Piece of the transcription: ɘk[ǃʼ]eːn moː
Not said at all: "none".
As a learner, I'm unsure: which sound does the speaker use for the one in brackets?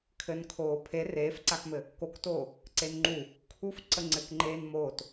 ŋ͡ǃ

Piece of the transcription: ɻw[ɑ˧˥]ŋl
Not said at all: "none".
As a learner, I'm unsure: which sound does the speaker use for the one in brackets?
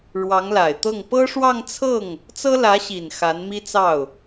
ɑ˧˥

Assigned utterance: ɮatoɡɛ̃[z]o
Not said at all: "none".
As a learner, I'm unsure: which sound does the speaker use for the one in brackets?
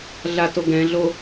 ɮ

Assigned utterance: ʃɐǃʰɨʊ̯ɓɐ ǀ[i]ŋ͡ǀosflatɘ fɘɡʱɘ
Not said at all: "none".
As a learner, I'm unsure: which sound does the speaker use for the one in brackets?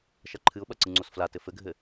ɨ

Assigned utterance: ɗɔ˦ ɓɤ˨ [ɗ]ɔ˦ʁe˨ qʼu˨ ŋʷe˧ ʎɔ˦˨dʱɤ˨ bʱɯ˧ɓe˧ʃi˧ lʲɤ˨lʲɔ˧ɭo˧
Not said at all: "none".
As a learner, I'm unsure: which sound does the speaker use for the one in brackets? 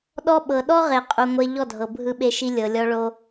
ɗ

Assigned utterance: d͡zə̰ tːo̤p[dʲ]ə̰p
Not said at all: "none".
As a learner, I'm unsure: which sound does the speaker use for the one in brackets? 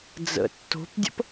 dʲ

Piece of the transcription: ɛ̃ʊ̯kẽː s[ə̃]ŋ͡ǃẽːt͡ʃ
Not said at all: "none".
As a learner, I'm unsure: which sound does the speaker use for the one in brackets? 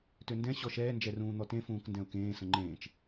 ə̃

